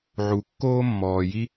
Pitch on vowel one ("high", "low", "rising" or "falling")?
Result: low